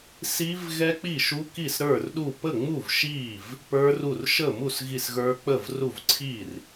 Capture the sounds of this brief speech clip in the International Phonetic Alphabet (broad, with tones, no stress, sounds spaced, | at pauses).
s i˦˥ v ɣ ɛ˦˥ k͡p i˥˩ ʃ u˦˥ k i˥˩ s ɾ ə˞˥˩ r ɗ u˥˩ p ə˥˩ ŋ͡m u˥˩ v ʃ i˥˩ v | p ə˞˦˥ r u˥˩ r ʃ ə˥˩ m u˥˩ s ɣ i˥˩ s ɣ ə˞˦˥ k͡p ə˥˩ v r u˥˩ v ǀʰ i˥˩ r